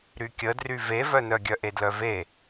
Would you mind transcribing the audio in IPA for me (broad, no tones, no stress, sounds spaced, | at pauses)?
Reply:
ɾ y kʲ ə d r y v e v œ n œ ɡʲ œ ʔ e d l œ v e